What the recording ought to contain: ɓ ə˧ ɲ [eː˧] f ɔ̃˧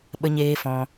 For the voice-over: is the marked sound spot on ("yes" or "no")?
yes